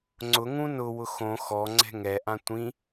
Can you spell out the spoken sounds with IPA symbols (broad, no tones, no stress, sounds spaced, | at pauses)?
ŋ͡ǀ ʊ ŋ ũ n ʊ w ʊ x õ x ɔ ŋ͡ǀ ɛ̤ ŋ ɛ ʔ ã tʷ ĩ